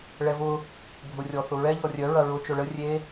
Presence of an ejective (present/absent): absent